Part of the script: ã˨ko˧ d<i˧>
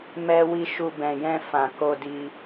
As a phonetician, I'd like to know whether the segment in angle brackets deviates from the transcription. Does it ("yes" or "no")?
no